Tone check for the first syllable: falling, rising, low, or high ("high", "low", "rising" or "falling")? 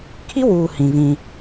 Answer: high